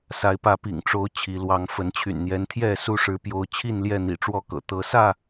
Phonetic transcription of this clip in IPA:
s a˨˦ ɪ̯ p ä˨˦ p ḭ˨˩ ŋ ʈ͡ʂ o˨˦ ʊ̯ t͡ɕʰ i˨˦ l w ɑ˨˦ ŋ f ə˨˦ n t͡ɕʰ y̰˨˩ n n̪ j ɛ˨˦ n t̪ʰ j ɛ˥˨ s u˥˨ ʂ ɻ̩˦ p j o˦ ʊ̯ t͡ɕʰ i˥˨ n l j ɛ˥˨ n̪ ḭ˨˩ ʈ͡ʂ w ɔ˥˨ k ɤ̰˨˩ t̪ ɤ˨˦ s ä˥˨

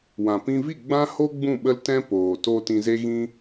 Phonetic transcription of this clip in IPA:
w ã˨ p ĩ˧ v i˦˨ ɡ͡b ã˦ h o˦ ɡ͡b ũ˦˨ ɓ ə˦ l t ɛ̃˦ p oː˨ t o˧ t ĩ˧ z e˦ ɣ ĩ˦

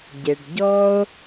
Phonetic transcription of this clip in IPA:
ɟ e˩ ɖ ɟ ɔ˧ o̯

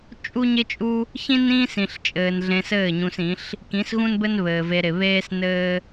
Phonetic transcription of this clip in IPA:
t͡ʃʼ u˦ ɲ ɪ˦ t͡ʃʼ u˦ | ç ĩ˦ n ĩː˦ s ĩ˨ ɬ t͡ʃʼ ɘː˨ n ɮ ẽ˧ s ɘː˦˨ ɲ ũ˧ s ĩ˨˦ ɬ | k ĩ˨˦ s ɣ ũ˦ n b ɘ˦ n β ɘː˨ v e˧ ɾ ɪ˨ β eː˦ s n ɘː˦

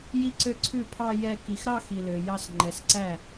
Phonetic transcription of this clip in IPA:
j i˥˩ ǀ ø˥˩ ǀʰ ʉ˥˩ pʰ ɑ˥˧ j ɛ˥˧ k i˨˩ x ɾ ɑ˥˧ x i˨˩ l ø˨˩ j ɑ˥˧ s ŋ͡ǃ ɛ˨˩ s ǀ æ˥˩

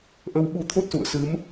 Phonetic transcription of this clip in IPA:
ʔ ə˧ w ɓ u˧ t̪ʰ o˦˥ t̚ s ṵ˧˨ ə̯ s ɨ˨˦ m

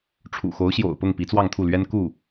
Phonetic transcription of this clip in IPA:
ʈ͡ʂʰ ṵ˨˩ x o˧˥ ʊ̯ ɕ j o̰˨˩ ʊ̯ p ʊ˥˩ ŋ p i˧˥ t͡s w ɑ˥˧ ŋ t̪ʰ u˥˩ l ɥ ɛ˥ n k u˥˩

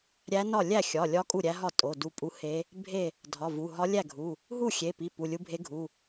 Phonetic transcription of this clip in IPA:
ɾʲ æ˧˥ n ɒ˥˩ lʲ æ˥˩ xʲ ɒ˩˧˩ lʲ ɒ˧˥ kʼ u˥˩ ɾʲ æ˧˥ ɦ ɒ˥˩ tʼ o˩˧˩ d u˧˥ pʼ u˧˥ h e˧˥ | bʱ e˥˩ | dʱ ɒ˩˧˩ v u˩˧˩ ɦ ɒ˧˥ lʲ æ˥˩ ɡʱ u˩˧˩ | ɦ u˥˩ xʲ e˩˧˩ p i˩˧˩ p u˩˧˩ lʲ u˧˥ bʱ e˧˥ ɡʱ u˩˧˩

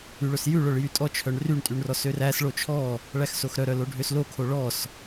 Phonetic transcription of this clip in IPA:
y ɭ ɵ s j ʉ ɭ œ ɭ j y tʼ ɔ t͡ʃʰ œ ɳ r y ɳ tʼ y ɳ r ɔ s ø r æ s ɭ o t͡ʃʰ ɔ | ɭ æ x s o x ɾ œ ɾ œ l o ɖʱ ø s l o kʰ o ɭ ɔ s

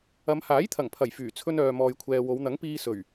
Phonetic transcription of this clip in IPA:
ɐ˨˧ m h aː˨˥ j t̪ʰ ɐ˨˩ ŋ pʰ ɐ˨˩ j f yː˨˩ t͡sʰ ɵ˧ n œː˨ m ɔː˨ j kʷʰ ɛː˨ w o˨˧ w n̪ ɐ˨˥ ŋ p iː˧ s ɵ˨˩ ɥ

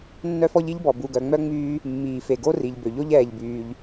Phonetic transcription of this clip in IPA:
nː œ˥ f ɔ˥ ʎ i˥ ʎ b ɔ˩ b u˩ ɡ œ˩ ŋ͡m œ˥ ŋ͡m yː˥ | mː iː˩ f e˩ ɡ o˥ r i˩ ʎ b ø˩ ʎ o˥ ʎ ɛː˩ ʎ b yː˩ ʎ

